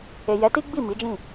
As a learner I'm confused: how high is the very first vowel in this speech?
mid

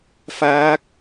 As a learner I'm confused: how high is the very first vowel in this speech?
low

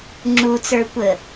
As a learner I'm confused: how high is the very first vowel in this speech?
high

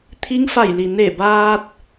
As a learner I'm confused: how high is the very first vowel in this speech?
high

